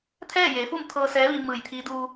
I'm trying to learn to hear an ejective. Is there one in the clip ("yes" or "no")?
no